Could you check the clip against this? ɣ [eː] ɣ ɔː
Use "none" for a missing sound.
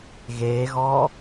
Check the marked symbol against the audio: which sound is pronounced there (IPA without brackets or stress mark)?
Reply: eː